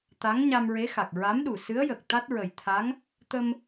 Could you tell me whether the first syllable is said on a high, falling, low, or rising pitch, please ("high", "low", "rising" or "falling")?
rising